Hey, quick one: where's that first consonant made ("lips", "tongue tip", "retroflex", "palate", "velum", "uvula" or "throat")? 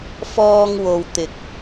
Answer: lips